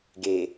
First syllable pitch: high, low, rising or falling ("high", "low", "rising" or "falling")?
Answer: low